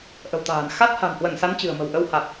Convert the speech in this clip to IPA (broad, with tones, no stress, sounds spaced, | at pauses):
ʔ ə̤˨˩ w t̪ a̤ː˨˩ n x a˦˥ t̚ h a̤˨˩ n h w ə˧˩ n s a˨˦ n t͡ɕ ɨ̤˨˩ ə̯ m ə̤˨˩ w ʔ ə˧ w h a˨˩ t̚